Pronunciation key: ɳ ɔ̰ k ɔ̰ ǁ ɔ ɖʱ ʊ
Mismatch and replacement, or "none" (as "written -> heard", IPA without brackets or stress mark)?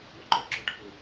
k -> ǃ